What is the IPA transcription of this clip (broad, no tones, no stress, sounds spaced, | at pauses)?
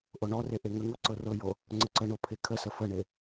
ʔ o ɳ ɔ r e ʔ e ŋ ə ŋ o ǀ ɤ r ɤ j o | ŋ͡ǀ ə ǀ ə ɳ o pʰ e kʰ ə s ə f ə ɳ e